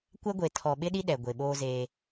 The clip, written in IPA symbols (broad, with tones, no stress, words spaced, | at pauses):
kʷɛ˦ɡʷe˨tʰɔ˨ ɓɪ˦ɗi˦ɗɛ˨ ɡʷe˨ɓoː˦zeː˦